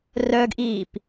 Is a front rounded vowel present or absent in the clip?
present